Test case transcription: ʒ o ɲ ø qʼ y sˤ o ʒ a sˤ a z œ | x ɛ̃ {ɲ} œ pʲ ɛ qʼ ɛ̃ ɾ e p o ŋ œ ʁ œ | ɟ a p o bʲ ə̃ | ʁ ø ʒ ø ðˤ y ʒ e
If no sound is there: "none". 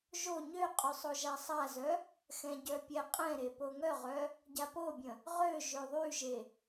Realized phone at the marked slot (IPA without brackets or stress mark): ɟ